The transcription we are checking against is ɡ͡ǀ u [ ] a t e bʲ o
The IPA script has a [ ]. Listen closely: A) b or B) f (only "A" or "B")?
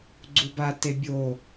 A